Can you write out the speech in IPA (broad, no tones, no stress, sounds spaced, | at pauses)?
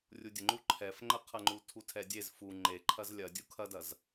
rʲ u dʲ ə ŋ͡ǃ u ǃʰ ɛ f ŋ͡ǃ ə qʰ ɐ ŋ͡ǃ u tʰ u tʰ ɛ dʲ e z f u ŋ͡ǃ e ǃʰ ɐ z lʲ ɐ dʲ u kʰ ɐ d ɐ z